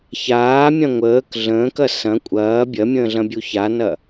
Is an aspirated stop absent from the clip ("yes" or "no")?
yes